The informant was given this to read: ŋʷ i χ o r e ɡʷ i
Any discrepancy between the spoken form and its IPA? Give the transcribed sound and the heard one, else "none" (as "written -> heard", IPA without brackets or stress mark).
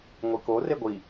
χ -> k